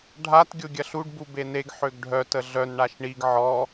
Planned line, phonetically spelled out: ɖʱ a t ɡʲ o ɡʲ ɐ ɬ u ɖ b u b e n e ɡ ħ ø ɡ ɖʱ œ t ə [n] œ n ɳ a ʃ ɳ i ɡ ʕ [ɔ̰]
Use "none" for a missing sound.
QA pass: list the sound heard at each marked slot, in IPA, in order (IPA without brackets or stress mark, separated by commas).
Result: ɮ, ɔ